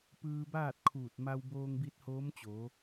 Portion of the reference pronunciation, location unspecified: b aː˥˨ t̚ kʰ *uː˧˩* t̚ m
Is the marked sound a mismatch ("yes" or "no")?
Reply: no